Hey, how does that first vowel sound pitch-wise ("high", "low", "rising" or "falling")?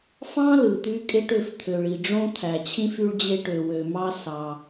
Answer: high